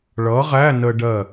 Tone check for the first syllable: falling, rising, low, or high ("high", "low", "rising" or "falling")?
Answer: rising